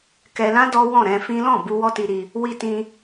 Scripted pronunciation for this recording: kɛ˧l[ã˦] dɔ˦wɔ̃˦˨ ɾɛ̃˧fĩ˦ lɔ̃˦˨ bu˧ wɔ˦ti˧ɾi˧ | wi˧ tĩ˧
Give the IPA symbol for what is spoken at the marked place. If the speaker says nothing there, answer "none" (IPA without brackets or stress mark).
ã˦